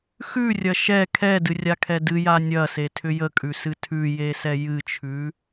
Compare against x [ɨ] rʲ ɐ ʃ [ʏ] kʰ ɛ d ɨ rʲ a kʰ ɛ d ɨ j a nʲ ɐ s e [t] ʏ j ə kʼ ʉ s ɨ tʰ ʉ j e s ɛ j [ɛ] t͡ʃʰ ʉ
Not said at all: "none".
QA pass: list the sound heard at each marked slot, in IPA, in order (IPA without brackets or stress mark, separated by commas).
ʉ, ɛ, tʰ, ɨ